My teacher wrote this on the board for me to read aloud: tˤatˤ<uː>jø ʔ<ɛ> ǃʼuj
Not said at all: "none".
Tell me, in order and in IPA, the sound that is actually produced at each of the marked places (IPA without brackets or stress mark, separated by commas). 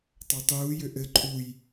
uː, ɘ